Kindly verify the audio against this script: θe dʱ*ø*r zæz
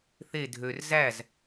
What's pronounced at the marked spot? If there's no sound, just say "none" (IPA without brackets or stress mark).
ø